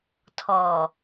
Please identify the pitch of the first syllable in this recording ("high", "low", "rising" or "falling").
low